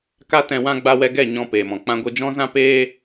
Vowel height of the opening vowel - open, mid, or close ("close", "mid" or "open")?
open